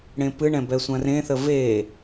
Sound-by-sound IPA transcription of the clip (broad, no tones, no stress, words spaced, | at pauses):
ɽẽpɨɳɛ̃ bɛsʷãrẽθə ve